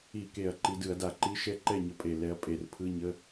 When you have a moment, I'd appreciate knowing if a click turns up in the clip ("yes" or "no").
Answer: yes